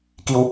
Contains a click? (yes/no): no